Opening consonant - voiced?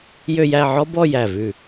yes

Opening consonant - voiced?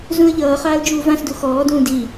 yes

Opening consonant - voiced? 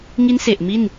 yes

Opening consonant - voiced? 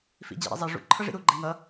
no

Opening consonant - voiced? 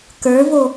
no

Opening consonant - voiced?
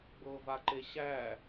yes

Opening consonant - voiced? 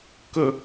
no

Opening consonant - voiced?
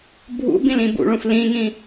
yes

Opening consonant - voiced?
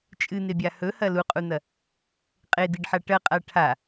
no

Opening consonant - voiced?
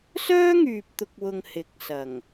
no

